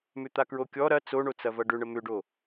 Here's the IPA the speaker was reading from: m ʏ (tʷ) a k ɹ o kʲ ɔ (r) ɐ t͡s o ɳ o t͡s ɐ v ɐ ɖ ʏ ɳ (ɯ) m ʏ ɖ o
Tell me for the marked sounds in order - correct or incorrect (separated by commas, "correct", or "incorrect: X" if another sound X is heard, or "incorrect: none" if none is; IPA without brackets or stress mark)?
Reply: incorrect: t̪, incorrect: ɾ, incorrect: ə